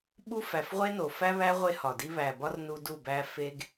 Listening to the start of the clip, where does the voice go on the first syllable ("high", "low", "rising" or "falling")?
high